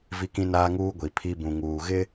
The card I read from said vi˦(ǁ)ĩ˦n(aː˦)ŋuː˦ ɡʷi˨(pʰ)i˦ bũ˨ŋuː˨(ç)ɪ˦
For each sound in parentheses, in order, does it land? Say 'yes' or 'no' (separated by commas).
no, yes, yes, no